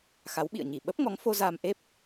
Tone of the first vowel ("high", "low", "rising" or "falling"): rising